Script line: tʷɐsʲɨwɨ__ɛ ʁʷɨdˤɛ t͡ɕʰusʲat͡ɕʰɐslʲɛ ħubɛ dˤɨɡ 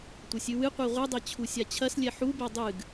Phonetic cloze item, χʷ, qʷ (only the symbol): qʷ